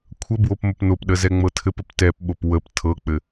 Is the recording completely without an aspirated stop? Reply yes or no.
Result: no